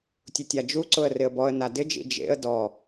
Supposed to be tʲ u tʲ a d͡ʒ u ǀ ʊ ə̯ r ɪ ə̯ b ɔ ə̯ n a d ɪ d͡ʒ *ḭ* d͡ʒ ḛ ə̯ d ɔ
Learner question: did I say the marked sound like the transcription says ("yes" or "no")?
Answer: yes